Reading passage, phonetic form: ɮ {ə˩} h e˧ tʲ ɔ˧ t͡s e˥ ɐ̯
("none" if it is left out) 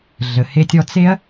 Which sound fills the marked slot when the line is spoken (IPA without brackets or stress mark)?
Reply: ə˩